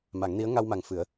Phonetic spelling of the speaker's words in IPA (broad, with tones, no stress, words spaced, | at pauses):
ma˨˩˦ŋni˧˥ə̯ ŋa˧wma˨˩ŋ fɨ˨˩˦ə̯